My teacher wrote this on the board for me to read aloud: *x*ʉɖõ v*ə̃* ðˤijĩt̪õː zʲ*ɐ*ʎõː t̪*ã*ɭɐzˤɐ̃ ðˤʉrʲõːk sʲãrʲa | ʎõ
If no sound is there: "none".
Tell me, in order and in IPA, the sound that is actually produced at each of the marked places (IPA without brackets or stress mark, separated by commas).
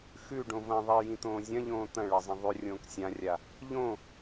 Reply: x, ɐ̃, ɐ̃, ɐ̃